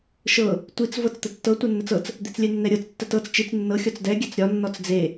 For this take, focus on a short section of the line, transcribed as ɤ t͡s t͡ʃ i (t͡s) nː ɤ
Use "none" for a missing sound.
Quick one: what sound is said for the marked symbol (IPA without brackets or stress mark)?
t͡s